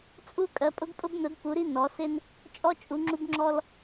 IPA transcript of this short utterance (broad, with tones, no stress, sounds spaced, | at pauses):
t͡sʼ u˧ kʼ ɜ˩˧ pʼ ʊ˧ ɡ pʼ ʊ˧ b n ʊ˩˧ d p u˩˧ ɾ i˧ n ɔ˩˧ s ɪ˧ n | t͡ʃʼ ɔ˧ t͡ʃʼ u˩˧ ŋ͡ǁ u˧ b ŋ͡ǁ ɔ˧ l